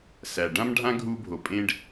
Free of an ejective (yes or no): no